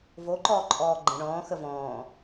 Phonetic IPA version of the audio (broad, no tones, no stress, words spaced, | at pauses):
voǃɔːǃʼɔː ɡ͡ǃə̃ ɳɔ̃ːxə vɔ̃ː